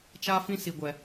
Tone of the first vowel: high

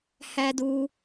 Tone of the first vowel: high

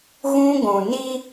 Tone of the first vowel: high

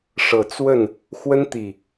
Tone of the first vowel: low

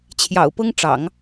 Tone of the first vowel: low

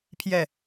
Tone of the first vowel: falling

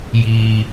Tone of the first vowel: low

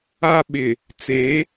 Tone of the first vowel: high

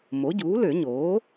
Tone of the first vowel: rising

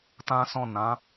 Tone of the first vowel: high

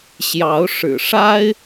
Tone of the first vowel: rising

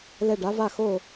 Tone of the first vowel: falling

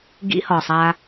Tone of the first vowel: high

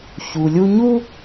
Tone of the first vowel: low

